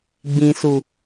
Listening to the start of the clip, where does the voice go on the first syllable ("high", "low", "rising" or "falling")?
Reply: low